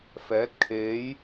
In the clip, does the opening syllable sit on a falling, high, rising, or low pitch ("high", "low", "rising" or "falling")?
rising